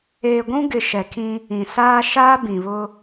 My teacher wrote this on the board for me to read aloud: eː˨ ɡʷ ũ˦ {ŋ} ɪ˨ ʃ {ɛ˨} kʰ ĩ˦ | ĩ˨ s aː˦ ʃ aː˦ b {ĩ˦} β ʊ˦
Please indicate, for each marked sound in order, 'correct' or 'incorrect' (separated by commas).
incorrect, correct, incorrect